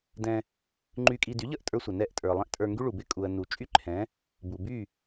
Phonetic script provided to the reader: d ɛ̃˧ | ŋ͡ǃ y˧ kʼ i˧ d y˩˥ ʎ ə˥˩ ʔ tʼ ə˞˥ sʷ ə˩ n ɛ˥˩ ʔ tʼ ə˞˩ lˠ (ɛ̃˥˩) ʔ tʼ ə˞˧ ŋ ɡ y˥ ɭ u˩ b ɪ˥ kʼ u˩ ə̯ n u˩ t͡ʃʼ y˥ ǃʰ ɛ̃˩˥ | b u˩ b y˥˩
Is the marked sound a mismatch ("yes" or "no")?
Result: yes